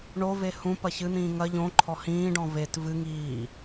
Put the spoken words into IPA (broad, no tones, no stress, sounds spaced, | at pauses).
ɳ o v e h ũ p ɐ ç ɨ n̪ ĩː ŋ ɐ ʎ õ ǃʰ ɔ h ĩː ɖ ɔ̃ v e t v ɨ ŋ iː